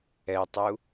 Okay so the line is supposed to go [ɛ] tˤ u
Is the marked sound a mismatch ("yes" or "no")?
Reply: no